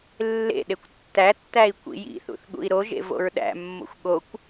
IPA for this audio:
lː ḛ ɗ e kʷ tː æ tː æ i̯ kʷ ḭ j ḭ θ ṵ θ ɠ ṵ i̯ ɾ o ʒ ḛ v o̰ ɹ ɗ æ̰ mː o̰ xʷ ɠ o kʷ

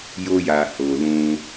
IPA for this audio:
j o˧ j a˨ h o˨ l ũ˧

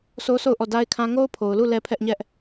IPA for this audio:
sʰ o˦ s o˦˨ ʊ̯ ʔ ɔ˦˨ d a˦ ɪ̯ kʰ ã˦ ŋ o˦ ʊ̯ pʰ o˨ ʊ̯ l u˦˨ l ɛ˦ pʰ ɛ˦ ʔ ɲ ɛ˦ ʔ

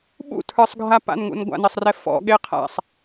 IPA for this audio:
ɓ ṵ tʰ ə˞ sˤ ɡʱ a p a̰ n ŋ ṵ n ɡʷ a̰ n e sˤ r ɛ f ɔ̰ ɠ e qʰ a̰ sˤ

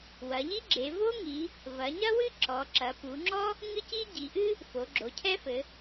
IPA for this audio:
w ɐ˩˧ ʎ i˥ ɡ͡ǁ e˩˧ v o˥ ŋ i˩˧ | v ɐ˩˧ ɲ ɐ˥ w ɨ˥ ǁ ɔ˩˧ ǁ ɐ˩˧ p u˩˧ ŋ͡ǁ ɔ˥ | ŋ ɨ˥ c i˥ ɟ i˩˧ ʔ ɨ˥ | f o˩˧ ɡ͡ǁ o˩˧ cʰ ɛ˥ f ɘ˩˧

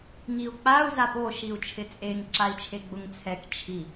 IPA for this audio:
ŋ i u̯ k͡p a u̯ z a p o ʃ i u̯ t͡ʃʰ ɪ t͡sʼ e ŋ ǁ a i̯ t͡ʃʰ e ɡ͡b ʊ ŋ t͡sʰ ɛ k t͡ʃʰ i

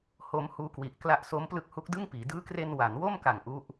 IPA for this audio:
h o˦˥ m h uː˦˥ k w i˨˩ ʔ k l a˦˥ ʔ s o˦˥ m p l ɯ˦˥ k̚ h u˦˥ k̚ d ɯ˥˩ ŋ p iː˩˦ d ɯː˦˥ k r e˧ n w a˩˦ n w o˥˩ m k a˨˩ ŋ ʔ u˦˥ ʔ

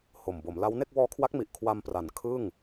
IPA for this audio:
h o˨˩ m b o˩˦ m l a˦˥ w n e˥˩ k̚ w ɔː˦˥ kʰ w a˦˥ k̚ m i˨˩ ʔ kʰ w a˧ m p r a˩˦ n kʰ ɯ˥˩ ŋ

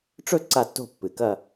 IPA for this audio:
ʈ͡ʂ ɵ˥˧ ǀ a˥˧ tː o̤˥˧ pː ɨ˨˩ k ɐ˥˧

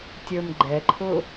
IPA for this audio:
tʲ ə˞ m ɡ͡ǃ ɛ ǃʰ ʊ

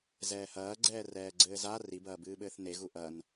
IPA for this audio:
z ɛː h ɐː ɡ͡ǀ ɛː r ɛː ɡ͡ǀ ɘː z a r i b ɐː b ɨː ɓ ɘː θ n e ɣ u ʔ ɐ n

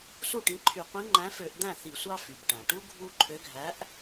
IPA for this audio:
s u˥˩ ʈ ĩ˨˥ ǃʰ y˧˩˧ qʷ ĩ˨˥ ŋ͡ǃ æ̃˨˥ f ø˧˩˧ ʔ d̪ æ̃˥˩ θ i˧˩˧ sʷ ɑ˦ f y˩ b ʈ æ̃˩ ʈ u˦ ɡʱ u˦ ǃʰ ø˨˥ ɡʱ æ˨˥ ʔ

